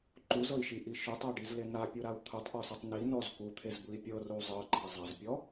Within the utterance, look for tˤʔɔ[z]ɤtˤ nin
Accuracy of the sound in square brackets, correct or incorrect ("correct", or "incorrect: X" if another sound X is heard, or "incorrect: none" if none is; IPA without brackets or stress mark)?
incorrect: s